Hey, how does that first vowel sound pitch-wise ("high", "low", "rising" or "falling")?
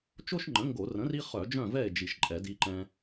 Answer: high